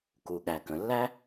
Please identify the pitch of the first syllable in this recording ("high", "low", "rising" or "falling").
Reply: low